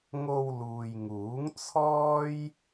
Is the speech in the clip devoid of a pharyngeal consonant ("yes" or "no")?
yes